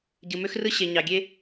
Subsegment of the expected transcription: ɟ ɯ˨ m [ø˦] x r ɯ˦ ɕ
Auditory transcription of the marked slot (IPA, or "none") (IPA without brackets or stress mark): ø˦